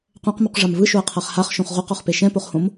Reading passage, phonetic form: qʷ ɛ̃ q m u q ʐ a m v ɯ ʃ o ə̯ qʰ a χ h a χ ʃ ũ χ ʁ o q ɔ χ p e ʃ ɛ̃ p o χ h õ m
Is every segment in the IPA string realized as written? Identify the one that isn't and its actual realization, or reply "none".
ũ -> õ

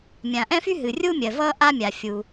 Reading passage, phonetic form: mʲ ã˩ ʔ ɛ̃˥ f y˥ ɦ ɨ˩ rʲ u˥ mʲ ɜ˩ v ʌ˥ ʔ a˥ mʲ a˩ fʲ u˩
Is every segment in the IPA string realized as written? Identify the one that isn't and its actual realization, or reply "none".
none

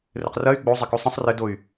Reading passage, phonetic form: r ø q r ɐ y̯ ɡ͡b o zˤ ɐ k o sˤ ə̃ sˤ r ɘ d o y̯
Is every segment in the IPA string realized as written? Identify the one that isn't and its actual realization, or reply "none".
ø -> ɘ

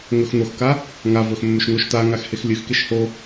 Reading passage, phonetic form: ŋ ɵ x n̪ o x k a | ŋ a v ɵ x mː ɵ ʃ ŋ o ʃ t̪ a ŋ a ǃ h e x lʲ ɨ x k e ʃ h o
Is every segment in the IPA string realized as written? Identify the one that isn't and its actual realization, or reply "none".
ǃ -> x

